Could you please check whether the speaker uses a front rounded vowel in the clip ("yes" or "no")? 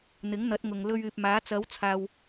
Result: yes